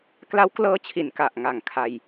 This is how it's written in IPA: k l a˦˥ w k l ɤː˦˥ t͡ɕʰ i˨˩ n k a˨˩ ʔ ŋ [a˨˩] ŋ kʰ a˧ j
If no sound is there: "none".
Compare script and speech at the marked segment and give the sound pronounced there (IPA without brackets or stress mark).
a˨˩